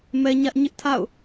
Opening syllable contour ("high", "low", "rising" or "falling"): high